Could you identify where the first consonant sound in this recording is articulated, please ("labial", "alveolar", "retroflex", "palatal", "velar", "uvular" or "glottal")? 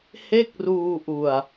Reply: glottal